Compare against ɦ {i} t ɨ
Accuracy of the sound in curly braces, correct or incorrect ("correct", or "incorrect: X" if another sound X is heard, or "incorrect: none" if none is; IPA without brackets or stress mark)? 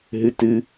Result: incorrect: ɨ